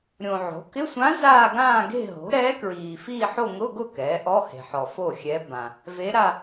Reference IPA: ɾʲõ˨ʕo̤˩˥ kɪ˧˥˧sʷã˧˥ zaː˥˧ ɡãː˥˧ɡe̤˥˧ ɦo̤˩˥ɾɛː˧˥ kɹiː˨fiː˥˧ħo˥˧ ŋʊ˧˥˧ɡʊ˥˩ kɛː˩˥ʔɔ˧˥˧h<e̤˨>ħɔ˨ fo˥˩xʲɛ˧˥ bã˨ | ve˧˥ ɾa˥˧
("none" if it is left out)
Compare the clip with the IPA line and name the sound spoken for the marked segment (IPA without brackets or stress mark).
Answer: e̤˨